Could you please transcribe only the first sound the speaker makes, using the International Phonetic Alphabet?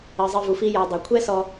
ɜ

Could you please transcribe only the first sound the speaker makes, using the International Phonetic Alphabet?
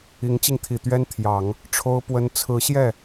i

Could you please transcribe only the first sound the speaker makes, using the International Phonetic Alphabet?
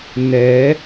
n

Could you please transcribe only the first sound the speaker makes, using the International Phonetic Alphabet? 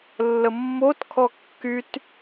lː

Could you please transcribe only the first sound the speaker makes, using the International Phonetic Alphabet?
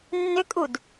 nː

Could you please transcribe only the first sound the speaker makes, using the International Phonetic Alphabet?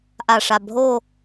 ʔ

